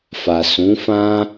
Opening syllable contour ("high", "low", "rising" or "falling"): low